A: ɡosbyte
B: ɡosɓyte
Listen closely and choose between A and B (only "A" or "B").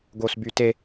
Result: A